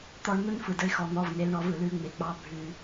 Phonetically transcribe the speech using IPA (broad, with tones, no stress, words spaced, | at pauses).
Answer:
t̪ɔ˧˩˧ɳn̪ɯ˧n fɯ˩də˧ɪ̯xɔ˩˧ n̪ɔ˩˧˩vne˩˧lɳɔ˧˩˧v ɯ˩lʉ˧˩˧ŋ͡me˩ k͡pɑ˧ bʱʉ˧˩˧